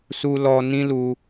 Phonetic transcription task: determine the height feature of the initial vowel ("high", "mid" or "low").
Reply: high